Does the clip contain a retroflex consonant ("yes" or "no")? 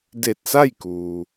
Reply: no